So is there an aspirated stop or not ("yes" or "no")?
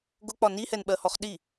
no